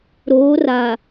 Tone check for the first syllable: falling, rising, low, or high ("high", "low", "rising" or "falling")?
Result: rising